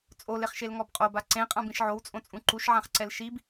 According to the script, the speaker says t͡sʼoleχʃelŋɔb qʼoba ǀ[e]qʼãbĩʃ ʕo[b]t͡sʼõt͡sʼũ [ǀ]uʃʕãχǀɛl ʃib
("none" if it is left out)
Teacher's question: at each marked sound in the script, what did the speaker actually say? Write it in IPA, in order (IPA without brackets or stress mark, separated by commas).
ẽ, w, ǃ